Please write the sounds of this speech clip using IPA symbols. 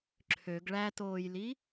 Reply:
ǁʰ ø ɡ ɭ æ t oː j l i

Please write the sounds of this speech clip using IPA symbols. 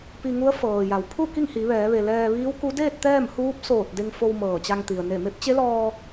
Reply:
p i˧ ŋ u˧˥ ə̯ f ɤː˩ j a˩ w pʰ u˥˨ k i˥˨ ŋ h i˩˧ ʋ ɛː˩˧ ʋ e˩ l ɛː˧ ʋ iː˧˥ w k u˧˥ d eː˥˨ t̚ t̪ ɛː˥˨ m h uː˧˥ p̚ s oː˧˩ t̚ d e˧ ŋ f o˧ w m ɤː˧˩ t͡ɕ a˧ ŋ t̪ i˩ ə̯ n e˧˩ m e˧˥ p̚ t͡ɕ e˧˥ l ɔː˧

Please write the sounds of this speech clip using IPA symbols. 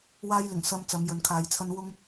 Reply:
w aː˧ j l ɪ˨˩ ŋ s ɐ˧ m t͡s ɐ˨˧ m j ɵ˨ n kʰ aː˨ j t͡sʰ ɐ˥ n w ʊ˥ ŋ

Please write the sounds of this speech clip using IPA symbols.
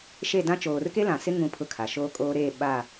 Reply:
ʃ e˦˨ d ã˦ t͡ʃ oː˨ r k e˦ l ã˨ s ɪ˦ ŋ ũ˨ pʰ ʊ˦ kʰ a˨ ʃ oː˦ kʼ oː˦ ɾ eː˦˨ ɓ a˦˨

